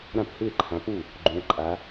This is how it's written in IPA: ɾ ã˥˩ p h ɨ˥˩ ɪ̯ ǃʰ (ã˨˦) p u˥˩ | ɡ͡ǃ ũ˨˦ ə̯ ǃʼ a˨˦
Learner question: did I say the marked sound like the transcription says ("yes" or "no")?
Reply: yes